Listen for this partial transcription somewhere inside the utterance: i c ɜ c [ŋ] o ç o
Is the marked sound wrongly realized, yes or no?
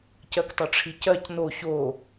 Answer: yes